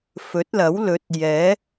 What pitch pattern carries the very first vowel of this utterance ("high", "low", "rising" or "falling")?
rising